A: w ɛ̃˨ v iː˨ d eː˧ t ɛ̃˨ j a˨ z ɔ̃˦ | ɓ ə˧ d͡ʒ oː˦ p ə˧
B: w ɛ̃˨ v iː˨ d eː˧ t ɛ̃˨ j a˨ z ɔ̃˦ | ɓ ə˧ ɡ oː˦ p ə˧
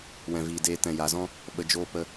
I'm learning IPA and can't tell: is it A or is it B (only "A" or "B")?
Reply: A